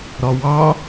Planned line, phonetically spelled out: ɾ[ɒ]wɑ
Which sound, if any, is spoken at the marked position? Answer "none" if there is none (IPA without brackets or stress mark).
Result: ɒ